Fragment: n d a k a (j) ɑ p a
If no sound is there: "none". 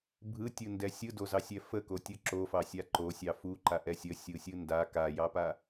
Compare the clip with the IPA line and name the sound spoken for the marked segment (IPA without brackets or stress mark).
j